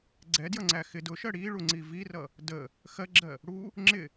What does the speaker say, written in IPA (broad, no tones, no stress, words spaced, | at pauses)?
ɡ͡ǀɛdjʌŋ͡ǀæ xɪ dʊʃɜ ɽiɭuŋ͡ǀi virʌ | də | xɜɡ͡ǁɜ | ɽu | ŋ͡ǁɪ